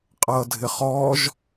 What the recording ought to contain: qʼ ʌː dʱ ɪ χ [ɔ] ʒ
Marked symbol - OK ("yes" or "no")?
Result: no